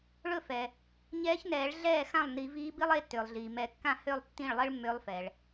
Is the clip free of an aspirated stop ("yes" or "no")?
yes